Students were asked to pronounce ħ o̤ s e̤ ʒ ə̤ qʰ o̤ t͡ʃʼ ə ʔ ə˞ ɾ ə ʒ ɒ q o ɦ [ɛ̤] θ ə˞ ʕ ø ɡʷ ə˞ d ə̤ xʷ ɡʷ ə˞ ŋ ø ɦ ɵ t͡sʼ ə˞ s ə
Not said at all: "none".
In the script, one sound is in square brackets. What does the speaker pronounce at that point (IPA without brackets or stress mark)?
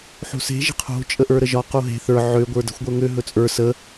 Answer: e̤